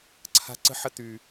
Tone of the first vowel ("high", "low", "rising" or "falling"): high